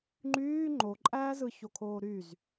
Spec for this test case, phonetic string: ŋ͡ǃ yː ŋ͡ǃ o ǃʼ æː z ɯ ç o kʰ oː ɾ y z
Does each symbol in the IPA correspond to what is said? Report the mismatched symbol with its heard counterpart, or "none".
none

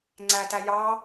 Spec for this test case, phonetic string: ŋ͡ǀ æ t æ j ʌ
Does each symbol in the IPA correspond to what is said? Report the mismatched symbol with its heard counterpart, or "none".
ʌ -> ɑ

